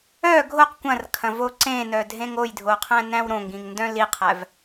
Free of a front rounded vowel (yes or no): no